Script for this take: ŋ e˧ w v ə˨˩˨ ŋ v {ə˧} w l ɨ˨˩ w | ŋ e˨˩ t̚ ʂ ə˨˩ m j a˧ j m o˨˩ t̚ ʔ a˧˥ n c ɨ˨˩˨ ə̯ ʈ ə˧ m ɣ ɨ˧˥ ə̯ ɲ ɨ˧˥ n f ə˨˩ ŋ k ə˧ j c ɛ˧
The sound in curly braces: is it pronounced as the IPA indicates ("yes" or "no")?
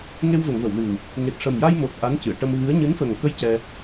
no